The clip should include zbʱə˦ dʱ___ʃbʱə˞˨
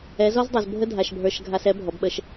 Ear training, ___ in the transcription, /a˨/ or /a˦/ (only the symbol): a˨